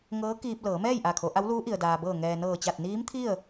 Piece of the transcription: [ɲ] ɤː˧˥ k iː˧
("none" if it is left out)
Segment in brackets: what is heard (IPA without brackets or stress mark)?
ŋ